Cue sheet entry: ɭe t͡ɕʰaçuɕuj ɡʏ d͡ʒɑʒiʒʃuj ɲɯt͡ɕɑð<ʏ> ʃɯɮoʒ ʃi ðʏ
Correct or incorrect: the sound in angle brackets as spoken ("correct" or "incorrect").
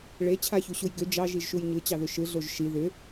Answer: correct